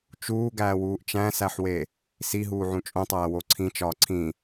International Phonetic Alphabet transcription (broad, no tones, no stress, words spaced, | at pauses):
t͡ʃuːɡæːwuːʔ t͡ʃæ̃sæħwe | siɦuːʕũ t͡ʃʼõtˤæːwo ǀʰĩt͡ʃɒː ǀʰĩ